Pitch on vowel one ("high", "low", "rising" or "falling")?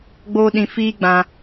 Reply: high